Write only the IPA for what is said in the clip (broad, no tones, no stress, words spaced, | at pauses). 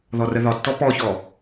ðɔrəðɒtːɔ pɔçɔ